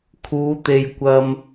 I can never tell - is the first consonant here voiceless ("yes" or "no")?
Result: yes